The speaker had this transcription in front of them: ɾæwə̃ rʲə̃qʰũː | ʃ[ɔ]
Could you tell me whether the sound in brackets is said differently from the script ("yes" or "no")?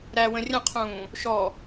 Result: no